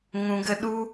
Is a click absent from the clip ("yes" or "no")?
yes